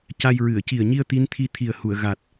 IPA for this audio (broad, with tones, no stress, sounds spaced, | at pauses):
c a˧ j ɹ ɨ˨˩˨ ə̯ c i˨˩ ə̯ ɲ i˧ ə̯ t̪ i˧˥ n t̪ʰ i˧ t̪ʰ i˨˩ ə̯ h u˨˩˨ ə̯ ɣ a˨˩ t̚